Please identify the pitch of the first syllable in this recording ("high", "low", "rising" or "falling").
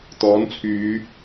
rising